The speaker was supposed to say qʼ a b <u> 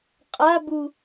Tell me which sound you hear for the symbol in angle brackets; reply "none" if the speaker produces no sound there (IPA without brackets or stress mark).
u